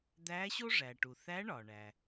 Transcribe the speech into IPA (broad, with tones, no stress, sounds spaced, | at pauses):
d̪ æ˧˥ ɕ o˥ ʐ æ˩ ʈ u˩ θ æ˧˥ ɳ ɒ˩ ɳ æ˩